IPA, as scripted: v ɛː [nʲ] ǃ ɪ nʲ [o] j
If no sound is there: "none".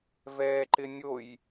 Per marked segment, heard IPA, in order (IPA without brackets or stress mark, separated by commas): none, o